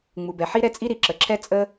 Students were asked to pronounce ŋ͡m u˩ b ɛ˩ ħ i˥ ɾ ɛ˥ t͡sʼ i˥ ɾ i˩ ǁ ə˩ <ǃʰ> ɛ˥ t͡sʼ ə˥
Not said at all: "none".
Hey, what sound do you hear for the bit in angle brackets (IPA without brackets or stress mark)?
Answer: ǁʰ